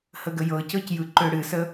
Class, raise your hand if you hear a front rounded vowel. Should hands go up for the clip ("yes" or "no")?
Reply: yes